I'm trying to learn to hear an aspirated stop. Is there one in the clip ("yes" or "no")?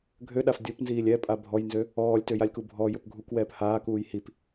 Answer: no